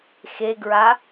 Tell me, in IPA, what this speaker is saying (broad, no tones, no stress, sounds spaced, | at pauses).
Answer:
x e ɡ ɹ a